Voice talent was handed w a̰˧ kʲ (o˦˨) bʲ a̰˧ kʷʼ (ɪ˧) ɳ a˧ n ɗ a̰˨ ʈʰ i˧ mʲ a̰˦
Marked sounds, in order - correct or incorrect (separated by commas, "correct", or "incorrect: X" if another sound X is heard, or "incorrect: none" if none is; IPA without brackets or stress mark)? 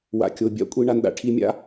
incorrect: o˧, incorrect: i˧